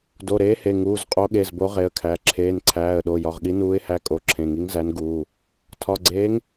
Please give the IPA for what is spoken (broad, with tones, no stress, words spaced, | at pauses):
do˩˧˩ɾeː˨˥he˩˧˩ ŋuː˩˧˩z qʼo˨˥ɠe˩˧˩zbo˨˥ ʁe˩˧˩ə̯kʰæ˩˧˩ ǁʰeː˩˧˩nǀʰæː˩˧˩ə̯ɗo˩˧˩ jɒ˩˧˩ʁɠi˨˥nuː˨˥ɪ̯hæ˨˥ kʼo˩˧˩ǁʰẽ˩˧˩ŋi˨˥ŋ zæ˨˥nɡuː˩˧˩ | tʰɒ˩˧˩ɡ͡ǀeː˨˥ŋ